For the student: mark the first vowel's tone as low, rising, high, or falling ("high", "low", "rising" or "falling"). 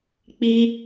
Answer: high